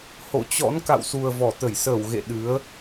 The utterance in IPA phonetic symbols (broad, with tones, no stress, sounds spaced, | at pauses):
h o̰˧˨ t͡ɕ ɔ̰˧˥ n k a̰˧˨ w s u˨˩ ə̯ v ɔ˧˩ t̪ ə˧˩ j s əː˧˩ w ɣ ḛ˧˨ ɗ ɨ˨˦ ə̯